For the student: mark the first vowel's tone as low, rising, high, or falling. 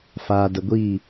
low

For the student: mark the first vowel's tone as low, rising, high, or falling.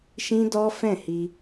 high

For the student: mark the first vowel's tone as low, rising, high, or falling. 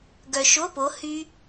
low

